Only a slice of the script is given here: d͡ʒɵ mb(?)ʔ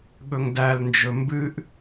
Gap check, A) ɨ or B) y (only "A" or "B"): A